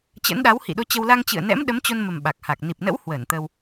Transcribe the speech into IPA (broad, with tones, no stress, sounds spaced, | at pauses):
t͡ɕ ə̰˧˥ n ɗ a˨˦ w h ḭ˧˨ ɗ o˧ t͡ɕ ə˧ w l a˧ ŋ t͡ɕ ɨ̰˧˨ ə̯ n ɛ̰˧˥ m ɗ ə˨˦ m t͡ɕ o˧ n m ə˨˩ m ɓ a˨˩ k̚ h a˨˩ k̚ n i˨˩ p̚ n ə̰˧˥ w h w əː˧˩ n t̪ ə˧ w